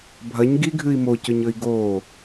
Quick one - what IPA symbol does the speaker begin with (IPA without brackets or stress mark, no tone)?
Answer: bʱ